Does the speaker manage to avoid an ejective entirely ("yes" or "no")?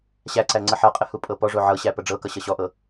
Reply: no